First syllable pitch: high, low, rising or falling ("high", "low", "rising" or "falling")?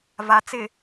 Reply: low